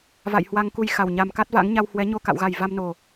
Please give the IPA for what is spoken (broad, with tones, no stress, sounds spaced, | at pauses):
v a̰˧˨ j h w a˧ ŋ k u˧ j x a˨˩ w ɲ a˨˩ m k a˦˥ t̚ v a̰˧˥ ŋ ɲ a˧ w h w ɛ˨˦ ɲ o˧ k a̰˧˨ w ɣ a˨˩ j v a˧ m n o˨˩